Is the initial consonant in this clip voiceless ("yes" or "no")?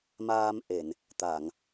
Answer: no